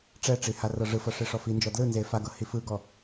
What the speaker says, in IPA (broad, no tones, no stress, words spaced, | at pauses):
ʈ͡ʂɛʈ͡ʂi harɤʐɯfɤ ʂeʂɔfind͡ʒɔ dlɯnze faɡɤ hifɯɡɔ